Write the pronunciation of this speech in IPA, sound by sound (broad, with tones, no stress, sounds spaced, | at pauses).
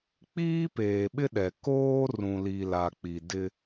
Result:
k͡p iː˦ p eː˨ ɓ ɪ˦ ɗ ɛ˨ k oː˦ r ũ˨ l i˨ l a˨ k͡p i˨ d ɪ˦